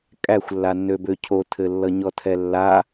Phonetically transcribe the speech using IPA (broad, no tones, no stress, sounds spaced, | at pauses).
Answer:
kʼ æ xʷ lː a nː ø b ø cʰ o tʰ ɘ lː ʌ ɲ ɔ tʰ ɛ lː a